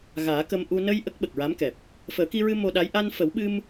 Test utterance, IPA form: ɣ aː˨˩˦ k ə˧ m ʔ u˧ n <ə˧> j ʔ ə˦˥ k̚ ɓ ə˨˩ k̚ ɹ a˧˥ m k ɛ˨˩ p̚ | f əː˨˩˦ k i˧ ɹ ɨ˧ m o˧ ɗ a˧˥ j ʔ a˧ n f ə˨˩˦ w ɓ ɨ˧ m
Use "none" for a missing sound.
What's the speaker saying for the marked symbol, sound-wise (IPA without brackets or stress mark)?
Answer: ə˧